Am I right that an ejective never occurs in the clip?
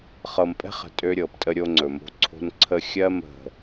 no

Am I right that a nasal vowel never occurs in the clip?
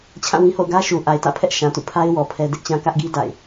no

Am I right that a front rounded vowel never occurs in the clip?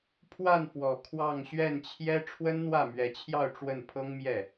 yes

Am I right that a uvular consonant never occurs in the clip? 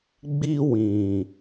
yes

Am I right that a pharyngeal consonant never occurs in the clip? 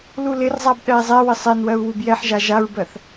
no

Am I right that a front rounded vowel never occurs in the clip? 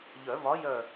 no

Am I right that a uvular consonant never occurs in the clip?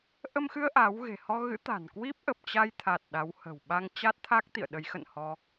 yes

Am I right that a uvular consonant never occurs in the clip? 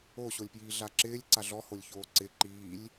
yes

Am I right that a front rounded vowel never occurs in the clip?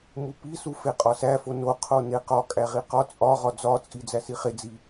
yes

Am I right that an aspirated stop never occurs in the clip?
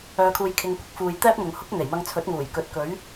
no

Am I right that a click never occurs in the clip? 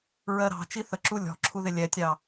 no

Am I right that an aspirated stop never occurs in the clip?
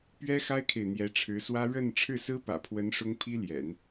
no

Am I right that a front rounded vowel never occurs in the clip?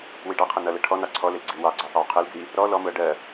yes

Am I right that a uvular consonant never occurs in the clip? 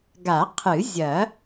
no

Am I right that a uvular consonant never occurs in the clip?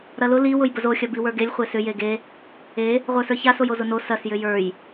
no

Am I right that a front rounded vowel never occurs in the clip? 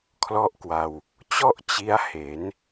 yes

